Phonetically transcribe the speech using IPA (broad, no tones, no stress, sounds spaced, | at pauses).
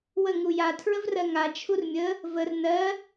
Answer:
w ə ŋ u j a tʰ ɹ ə v r ɜ ŋ a t͡ʃʰ u r mʲ ə | v ə r n ɜ